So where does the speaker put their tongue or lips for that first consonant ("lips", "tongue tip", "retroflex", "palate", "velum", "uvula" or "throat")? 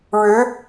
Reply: retroflex